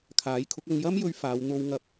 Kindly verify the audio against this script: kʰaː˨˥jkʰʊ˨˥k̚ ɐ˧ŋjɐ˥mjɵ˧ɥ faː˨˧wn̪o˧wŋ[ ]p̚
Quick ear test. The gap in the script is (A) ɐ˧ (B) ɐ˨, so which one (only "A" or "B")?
A